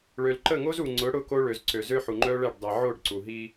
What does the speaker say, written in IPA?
ɭ ø˨ l ǃ ə˦˨ ŋ o˦ z u˨ ŋ͡ǀ ʊ˨˦ ɽ ʊ˦ k o˦ ɭ ø˨ z ǀ ø˨ z ø˦ ħ u˨ ŋ͡ǃ œ˦ ɭ ɛ˦˨ ɖ dˤ ɛ˨ ʕ o˦˨ ɖ ǀ u˨ ɦ i˦

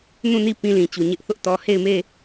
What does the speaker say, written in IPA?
n ũ˦˨ n i˦˨ p ĩ˦ l ĩ˨ t͡ɕ u˨ ɲ ɪ˦ ʔ θ ʊ˦ ʔ t ɔ˦ h e˦˨ ɪ̯ m e˦˨

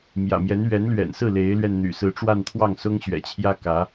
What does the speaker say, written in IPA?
m j ä̰˨˩ m j ɛ˧˥ n ɥ ɛ˧˥ n l ɥ ɛ̰˨˩ n s ɹ̩˥˩ l e˧˥ ɪ̯ l ɥ ɛ˧ n n̪ y̰˨˩ s ɹ̩˧˥ ʈ͡ʂ w a˥˧ n t̪ʰ w ɑ˥˩ ŋ s ʊ˥ ŋ ɕ ɥ ɛ̰˨˩ t͡ɕʰ j ä˥ k ä˧˥

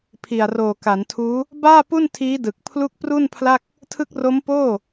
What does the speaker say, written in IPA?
pʰ i˨˩ a̯ r oː˨˩ k a˩˦ n tʰ uː˦˥ | b aː˥˩ p u˥˩ n tʰ iː˦˥ d ɯ˨˩ k̚ pʰ l u˦˥ k̚ p r u˥˩ n pʰ l a˥˩ k̚ | tʰ ɯ˦˥ k̚ r o˦˥ m p oː˥˩

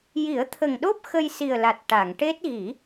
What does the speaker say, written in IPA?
j i˨˩˦ ə̯ t̪ʰ ə˨˩ ŋ ɗ o˦˥ p̚ x ə˧ j s i˨˩ ə̯ l a˨˩ t̚ ʈ a˨˩˨ ŋ ʈ e˦˥ t̚ ɣ i˨˩˦

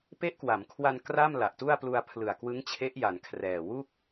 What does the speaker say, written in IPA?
p e˦˥ ʔ k w a˩˦ m kʰ w a˧ n k r a˥˩ m l a˨˩ ʔ t u˥˩ a̯ p l u˧ a̯ pʰ l ɯ˨˩ a̯ k w ɯ˦˥ ŋ t͡ɕʰ e˦˥ ʔ j a˩˦ n kʰ r ɛː˨˩ w u˥˩ k̚

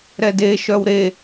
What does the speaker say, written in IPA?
ɾ ɛ d e ʃ œ w ɾ e

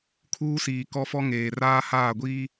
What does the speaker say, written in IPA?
kʰ uː˦ s iː˨ k ɔ˦ f ɔ˦ ŋ eː˨ r aː˦ h aː˦˨ ɡʷ iː˦

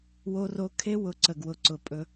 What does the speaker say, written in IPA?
w o˦ r o˦ kʰ e˦ w ʊ˧ ǀ ə˧ ɡ w ʊ˧ ǀ ʊ˧ pʼ ɵ˧

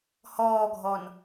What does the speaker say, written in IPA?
h ɔː ɡʱ ɔ n

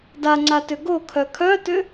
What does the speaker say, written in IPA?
d a ŋ͡ǀ a t ʏ ɡ o kʰ œ kʰ œ t ʏ

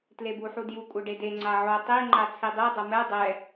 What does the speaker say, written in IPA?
t l e b u ħ u d j u kʷʼ ʌ ɖ e d e ŋ͡ǀ a ʕ o tˤ i ŋ͡ǃ a t͡sʰ i dˤ i dˤ ʌ m ɛ dˤ ɛ

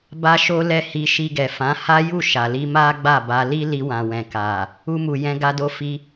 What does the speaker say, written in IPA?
b a˦ ʃ o˦ l ɛ˦˨ h i˧ ʃ i˧ ɡ ɛ˨ f ã˨˦ h a˦ j u˦˨ ʃ a˨ l i˧ m a˦ ɡ͡b a˦˨ b a˧ l i˦ l i˧ w ã˨ w ɛ̃˨ k a˨ | u˧ m u˨ j ɛ̃˧ ɡ a˧ d o˧ f i˧

